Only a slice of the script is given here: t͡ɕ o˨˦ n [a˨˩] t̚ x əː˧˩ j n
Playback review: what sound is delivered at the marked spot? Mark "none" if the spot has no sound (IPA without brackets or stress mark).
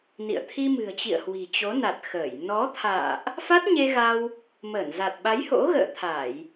a˨˩